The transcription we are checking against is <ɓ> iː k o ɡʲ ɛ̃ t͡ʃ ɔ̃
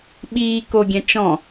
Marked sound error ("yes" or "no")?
no